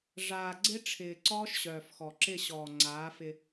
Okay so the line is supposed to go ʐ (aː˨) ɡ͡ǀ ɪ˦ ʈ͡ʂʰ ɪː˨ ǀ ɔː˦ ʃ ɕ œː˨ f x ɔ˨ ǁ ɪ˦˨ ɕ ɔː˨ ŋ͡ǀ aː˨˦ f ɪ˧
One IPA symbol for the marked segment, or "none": aː˨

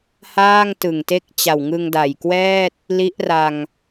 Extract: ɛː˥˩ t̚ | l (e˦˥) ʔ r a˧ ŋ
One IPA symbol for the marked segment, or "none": i˦˥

